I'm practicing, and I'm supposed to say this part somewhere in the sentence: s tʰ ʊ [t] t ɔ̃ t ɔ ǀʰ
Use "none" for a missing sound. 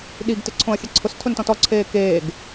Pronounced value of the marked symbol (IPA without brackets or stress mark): n